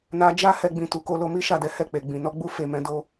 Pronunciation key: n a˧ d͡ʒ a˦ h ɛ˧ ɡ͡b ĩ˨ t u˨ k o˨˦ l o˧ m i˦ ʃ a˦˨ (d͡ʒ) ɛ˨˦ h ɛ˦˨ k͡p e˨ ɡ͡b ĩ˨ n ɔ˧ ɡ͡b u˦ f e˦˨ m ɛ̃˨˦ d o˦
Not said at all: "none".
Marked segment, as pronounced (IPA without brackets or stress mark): d